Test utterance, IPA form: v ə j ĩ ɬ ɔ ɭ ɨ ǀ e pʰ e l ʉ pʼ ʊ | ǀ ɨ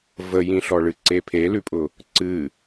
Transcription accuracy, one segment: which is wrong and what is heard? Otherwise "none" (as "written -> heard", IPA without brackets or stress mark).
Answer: none